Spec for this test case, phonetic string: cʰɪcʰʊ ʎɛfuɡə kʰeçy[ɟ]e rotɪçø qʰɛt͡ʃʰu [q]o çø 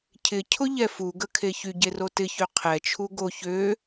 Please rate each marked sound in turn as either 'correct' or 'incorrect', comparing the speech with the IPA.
correct, incorrect: ɡ

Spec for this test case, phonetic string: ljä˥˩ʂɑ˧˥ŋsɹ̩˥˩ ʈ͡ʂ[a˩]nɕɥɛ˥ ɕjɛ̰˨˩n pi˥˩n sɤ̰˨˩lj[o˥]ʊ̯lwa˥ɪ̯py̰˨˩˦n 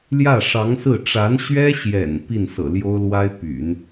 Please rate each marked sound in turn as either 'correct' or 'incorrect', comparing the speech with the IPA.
incorrect: a˧˥, correct

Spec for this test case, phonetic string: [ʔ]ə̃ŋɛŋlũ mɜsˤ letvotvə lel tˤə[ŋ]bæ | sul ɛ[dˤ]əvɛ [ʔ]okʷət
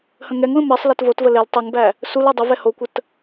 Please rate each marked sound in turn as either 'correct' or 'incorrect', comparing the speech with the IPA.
incorrect: h, correct, correct, incorrect: h

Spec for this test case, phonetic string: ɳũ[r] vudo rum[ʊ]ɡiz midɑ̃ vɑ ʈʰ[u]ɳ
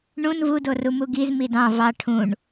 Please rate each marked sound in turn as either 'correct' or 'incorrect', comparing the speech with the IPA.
incorrect: n, incorrect: u, incorrect: ũ

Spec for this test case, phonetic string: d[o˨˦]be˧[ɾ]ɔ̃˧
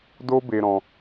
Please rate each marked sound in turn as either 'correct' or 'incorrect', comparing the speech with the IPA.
incorrect: o˦, correct

